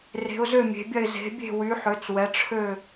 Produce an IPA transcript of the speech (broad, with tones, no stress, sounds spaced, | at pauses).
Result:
r e̤˨˦ ʊ̯ z ø˥˧ mʲ e̤˨˦ bʲ ɐ˥˧ ɪ̯ z e̤˨˦ bʲ e̤˥˧ w y˨˦ ħ ø˨˦ t͡s w ɛ˨˦ ʈ͡ʂʰ ø˥˧